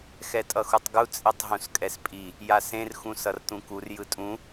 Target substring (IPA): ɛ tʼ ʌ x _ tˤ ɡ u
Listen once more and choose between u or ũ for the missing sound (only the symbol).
u